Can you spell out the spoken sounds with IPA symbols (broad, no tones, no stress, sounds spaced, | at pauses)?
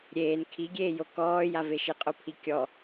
ɾʲ eː n kʰ i ɡʲ eː j o k ɔː j a v e ʃ ɪ qʼ o pʰ i kʲ ɔ